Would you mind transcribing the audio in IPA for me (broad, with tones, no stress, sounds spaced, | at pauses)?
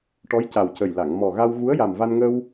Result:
ʈ ɔ˧˥ j c a˨˩ w c ə˨˩ j l a˨˩˨ ŋ m ɔ˨˩ ɣ a˧ w ɣ u˧˥ ə̯ j a˨˩ m v a˧ n ŋ ə˧ w